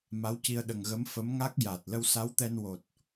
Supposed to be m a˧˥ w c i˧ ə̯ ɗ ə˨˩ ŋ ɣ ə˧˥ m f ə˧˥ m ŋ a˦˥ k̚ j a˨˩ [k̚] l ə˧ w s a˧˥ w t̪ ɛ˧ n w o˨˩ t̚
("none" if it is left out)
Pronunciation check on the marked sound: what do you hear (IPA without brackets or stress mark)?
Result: t̚